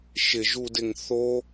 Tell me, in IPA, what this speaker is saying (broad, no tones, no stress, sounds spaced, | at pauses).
ʃ ɪ ʒ u d ɪ ŋ θ o